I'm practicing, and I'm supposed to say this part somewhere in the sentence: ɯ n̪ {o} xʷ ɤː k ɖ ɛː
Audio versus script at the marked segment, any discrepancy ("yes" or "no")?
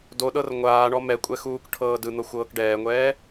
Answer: yes